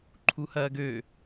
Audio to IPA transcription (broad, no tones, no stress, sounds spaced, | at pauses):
ǃʰ u h ɐː ɡ ø